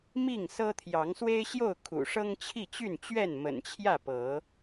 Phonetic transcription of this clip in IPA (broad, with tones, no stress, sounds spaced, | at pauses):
m i˥˨ ŋ s ɤ˦ t̪ʰ j ɑ˨˦ ŋ s w e˦ ɪ̯ ɕ j o˥˨ ʊ̯ kʰ ṵ˨˩ ʂ ɤ˦ ŋ t͡ɕʰ i˥˨ t͡ɕ y˥˨ n t͡ɕ ɥ ɛ˥˨ n m ə̰˨˩ n t͡ɕʰ j ä˥˨ p ɤ˨˦